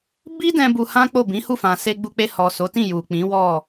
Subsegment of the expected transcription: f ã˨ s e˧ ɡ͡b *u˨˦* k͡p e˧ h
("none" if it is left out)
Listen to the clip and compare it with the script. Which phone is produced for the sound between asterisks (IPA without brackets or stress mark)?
u˧